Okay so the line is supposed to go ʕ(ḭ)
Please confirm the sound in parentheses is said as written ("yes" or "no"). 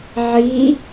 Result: no